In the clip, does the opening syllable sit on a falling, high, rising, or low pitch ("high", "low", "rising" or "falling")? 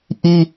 high